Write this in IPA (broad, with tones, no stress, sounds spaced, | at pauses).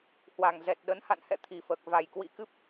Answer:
h w a˨˩ ŋ z ɛ˨˩ t̚ ɗ ə˨˦ n h a̰˧˨ n h ɛ̰˧˨ t̪ʰ i˨˩ f əː˨˩ k̚ v a˨˩ j k w ḭ˧˥ k ɨ˦˥ p̚